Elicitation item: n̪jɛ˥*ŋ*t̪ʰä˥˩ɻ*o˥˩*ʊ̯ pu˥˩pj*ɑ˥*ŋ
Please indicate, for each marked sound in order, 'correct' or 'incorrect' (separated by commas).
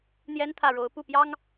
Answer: incorrect, incorrect, correct